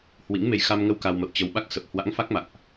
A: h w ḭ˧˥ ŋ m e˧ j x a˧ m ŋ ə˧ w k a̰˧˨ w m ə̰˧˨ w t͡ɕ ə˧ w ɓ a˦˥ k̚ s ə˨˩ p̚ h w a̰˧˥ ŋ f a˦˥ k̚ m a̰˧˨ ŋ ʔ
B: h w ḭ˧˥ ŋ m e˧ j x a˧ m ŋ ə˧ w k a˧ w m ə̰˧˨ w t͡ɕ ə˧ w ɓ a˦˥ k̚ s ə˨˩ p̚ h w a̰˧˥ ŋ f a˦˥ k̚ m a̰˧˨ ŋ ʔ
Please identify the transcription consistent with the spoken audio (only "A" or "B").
B